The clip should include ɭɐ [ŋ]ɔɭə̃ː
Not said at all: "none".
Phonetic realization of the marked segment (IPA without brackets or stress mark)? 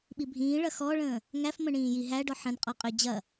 x